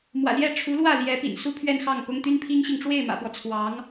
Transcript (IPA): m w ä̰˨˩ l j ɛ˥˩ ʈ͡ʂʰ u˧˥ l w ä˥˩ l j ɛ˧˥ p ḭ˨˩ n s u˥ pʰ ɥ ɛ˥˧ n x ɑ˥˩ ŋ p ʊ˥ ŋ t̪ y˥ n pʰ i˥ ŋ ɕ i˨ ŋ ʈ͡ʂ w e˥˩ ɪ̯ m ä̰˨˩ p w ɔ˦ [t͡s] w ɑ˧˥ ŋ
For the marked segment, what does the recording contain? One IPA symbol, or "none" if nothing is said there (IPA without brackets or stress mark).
t͡sʰ